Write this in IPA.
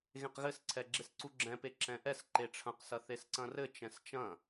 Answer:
ɣ ẽ q ɣ ɘ s ǀʰ ɛ ɡ͡ǁ e s ǀ u ɡ͡ǁ ɛ̃ p e ǁ ɛ̃ ʔ ɛ s ǃ e ʈ͡ʂʰ ɐ̃ q s ɐ θ e s ǀ ɐ̃ r ɘ t͡ʃ ɛ̃ s t͡ʃ ɐ̃

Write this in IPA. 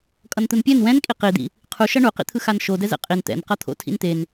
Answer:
kʼ ʌ n t̪ ɯ n pʲ ɛ n w ɛ̃ n kʼ i q i d̪ ḭ | qʰ u ʃ ʌ ɳ u q ḭ t̪ʰ ɯ x a n ʃ o d ɛ z ɛ̰ qʼ i n t̪ ɛ̰ n q ʌ t̪ʰ o̰ tʰ ḭ n t̪ e n

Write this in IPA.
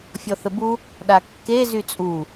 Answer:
fʲ ɔ θ ə b u | ɗ a kː e z y t͡sʼ u

